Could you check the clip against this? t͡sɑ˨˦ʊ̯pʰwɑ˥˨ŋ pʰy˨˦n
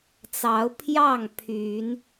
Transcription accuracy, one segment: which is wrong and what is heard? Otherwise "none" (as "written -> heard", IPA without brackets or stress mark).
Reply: w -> j